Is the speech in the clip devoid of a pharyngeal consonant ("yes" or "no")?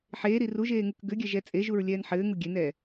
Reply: no